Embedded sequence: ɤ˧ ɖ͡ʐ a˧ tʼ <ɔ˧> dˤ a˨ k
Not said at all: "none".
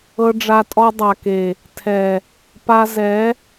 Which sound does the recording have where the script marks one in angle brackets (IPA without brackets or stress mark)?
ɔ˧